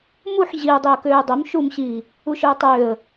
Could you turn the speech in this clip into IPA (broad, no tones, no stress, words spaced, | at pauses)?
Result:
muħ ʑiə̯ dˤiə̯køːə̯dˤom ʃumɕiː | uʃœə̯tˤøːə̯